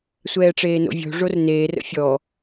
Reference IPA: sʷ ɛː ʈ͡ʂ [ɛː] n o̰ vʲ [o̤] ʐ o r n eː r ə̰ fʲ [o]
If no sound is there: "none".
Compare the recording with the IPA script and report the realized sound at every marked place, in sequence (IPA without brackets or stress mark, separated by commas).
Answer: eː, o̤, ɔ